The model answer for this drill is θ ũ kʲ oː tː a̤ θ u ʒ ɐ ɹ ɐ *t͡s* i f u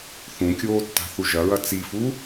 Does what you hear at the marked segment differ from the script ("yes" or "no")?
no